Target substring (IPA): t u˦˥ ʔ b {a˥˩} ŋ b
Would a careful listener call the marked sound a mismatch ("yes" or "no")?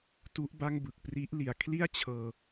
no